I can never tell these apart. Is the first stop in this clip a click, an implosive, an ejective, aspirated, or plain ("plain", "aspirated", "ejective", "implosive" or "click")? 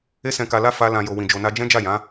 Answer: plain